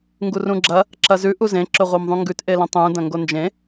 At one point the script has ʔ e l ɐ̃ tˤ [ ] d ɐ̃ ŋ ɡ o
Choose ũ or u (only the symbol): ũ